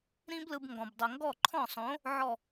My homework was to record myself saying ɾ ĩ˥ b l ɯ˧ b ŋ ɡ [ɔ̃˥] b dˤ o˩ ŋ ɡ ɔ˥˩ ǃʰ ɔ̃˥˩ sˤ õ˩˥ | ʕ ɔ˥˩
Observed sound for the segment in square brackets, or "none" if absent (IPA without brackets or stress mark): ɔ̃˩